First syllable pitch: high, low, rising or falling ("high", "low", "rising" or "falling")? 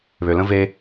low